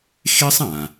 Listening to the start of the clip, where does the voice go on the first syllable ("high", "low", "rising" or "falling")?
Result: high